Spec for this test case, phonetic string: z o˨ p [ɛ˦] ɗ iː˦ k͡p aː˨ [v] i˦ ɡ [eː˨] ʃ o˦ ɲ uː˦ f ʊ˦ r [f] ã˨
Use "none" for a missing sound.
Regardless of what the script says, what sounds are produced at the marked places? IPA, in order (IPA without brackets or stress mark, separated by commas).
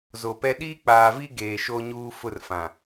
ɛ˦, v, eː˨, f